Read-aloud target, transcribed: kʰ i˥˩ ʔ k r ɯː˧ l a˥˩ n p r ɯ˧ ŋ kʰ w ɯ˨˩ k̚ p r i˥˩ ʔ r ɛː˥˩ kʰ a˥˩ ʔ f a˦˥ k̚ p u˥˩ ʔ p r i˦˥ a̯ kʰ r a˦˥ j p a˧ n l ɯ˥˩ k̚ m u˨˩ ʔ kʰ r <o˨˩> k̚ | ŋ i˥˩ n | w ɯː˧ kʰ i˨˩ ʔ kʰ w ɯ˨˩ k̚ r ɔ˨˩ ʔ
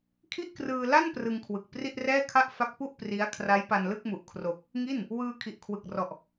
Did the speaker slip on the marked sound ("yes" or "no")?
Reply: no